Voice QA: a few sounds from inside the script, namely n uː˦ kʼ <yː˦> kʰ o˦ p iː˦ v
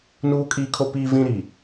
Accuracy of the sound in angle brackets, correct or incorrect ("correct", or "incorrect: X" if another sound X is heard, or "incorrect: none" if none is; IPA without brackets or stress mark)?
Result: incorrect: iː˦